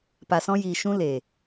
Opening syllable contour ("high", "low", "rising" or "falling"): low